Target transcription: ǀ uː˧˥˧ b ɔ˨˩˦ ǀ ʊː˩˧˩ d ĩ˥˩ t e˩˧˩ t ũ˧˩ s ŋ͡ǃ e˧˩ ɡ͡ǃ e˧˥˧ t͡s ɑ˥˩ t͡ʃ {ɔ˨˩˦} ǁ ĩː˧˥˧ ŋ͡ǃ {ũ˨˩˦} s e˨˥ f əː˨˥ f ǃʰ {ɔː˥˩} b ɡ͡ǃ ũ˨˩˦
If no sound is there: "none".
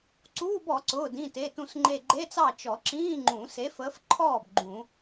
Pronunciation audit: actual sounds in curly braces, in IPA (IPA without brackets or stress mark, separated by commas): ɔ˨˩˦, ũ˨˩˦, ɔː˥˩